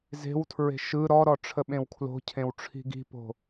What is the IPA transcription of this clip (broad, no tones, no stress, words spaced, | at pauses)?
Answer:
ze̤wtʰɹe̤ ʃɯ ɾɔɾɔ ʈ͡ʂʰəɓẽwkʰlo̤cʰẽw ʈ͡ʂʰi̤ɡi̤po̤